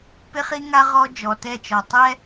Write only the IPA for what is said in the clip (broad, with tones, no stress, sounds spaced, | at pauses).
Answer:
p ɪ˦ χ i˦ ŋ a˦ ʁ ɔ˦ d͡ʒ ɔ˨ t ɛ˦˨ t͡ʃ ɔ˨ tˤ ɛ˦